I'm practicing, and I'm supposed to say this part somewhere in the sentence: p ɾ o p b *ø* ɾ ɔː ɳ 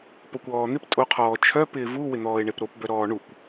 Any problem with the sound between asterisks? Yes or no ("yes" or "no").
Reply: yes